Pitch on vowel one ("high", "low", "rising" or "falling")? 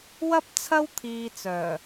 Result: high